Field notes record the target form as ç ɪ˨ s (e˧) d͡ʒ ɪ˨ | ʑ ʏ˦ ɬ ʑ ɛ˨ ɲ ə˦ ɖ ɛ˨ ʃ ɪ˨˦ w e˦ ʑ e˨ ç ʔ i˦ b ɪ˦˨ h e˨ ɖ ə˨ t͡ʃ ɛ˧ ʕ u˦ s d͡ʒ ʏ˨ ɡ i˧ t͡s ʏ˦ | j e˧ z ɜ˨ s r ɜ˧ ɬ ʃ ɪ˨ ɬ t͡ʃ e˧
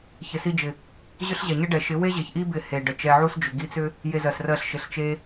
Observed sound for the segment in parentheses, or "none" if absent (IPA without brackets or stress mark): i˧